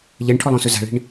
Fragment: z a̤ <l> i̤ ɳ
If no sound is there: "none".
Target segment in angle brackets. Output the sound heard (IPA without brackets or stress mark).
ɭ